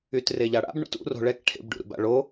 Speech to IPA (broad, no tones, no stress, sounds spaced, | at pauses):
y t r e ʎ a ɽ a̰ b ɳ ṵ t ṵ r o̤ ɭ ɛ k ʈʰ ḛ b ɖ ṵ ɾ ṵ b a̰ ɭ o